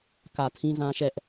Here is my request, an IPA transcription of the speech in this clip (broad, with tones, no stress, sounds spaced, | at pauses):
k ä˨ tʰ ĩ˦ z ã˦ ʃ ɛ˦ ʔ